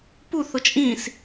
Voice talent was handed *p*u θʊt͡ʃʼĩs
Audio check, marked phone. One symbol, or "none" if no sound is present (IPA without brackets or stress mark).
p